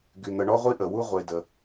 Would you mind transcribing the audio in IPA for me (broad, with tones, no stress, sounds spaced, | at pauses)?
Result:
ɡ y˨ n̪ ə˨ ɳ ɔ˦ ʁʷ i˦ ʔ ə˨ w u˦ ʁʷ e˦ d ə˦